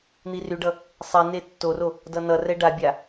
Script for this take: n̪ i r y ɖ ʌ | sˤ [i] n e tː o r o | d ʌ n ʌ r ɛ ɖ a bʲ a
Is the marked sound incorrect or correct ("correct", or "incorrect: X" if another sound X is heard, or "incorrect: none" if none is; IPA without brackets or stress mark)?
correct